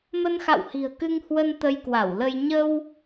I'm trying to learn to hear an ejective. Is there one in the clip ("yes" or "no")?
no